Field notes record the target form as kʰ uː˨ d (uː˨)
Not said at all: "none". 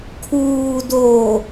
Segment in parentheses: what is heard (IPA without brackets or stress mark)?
oː˨